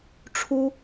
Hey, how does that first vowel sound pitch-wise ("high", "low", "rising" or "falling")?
high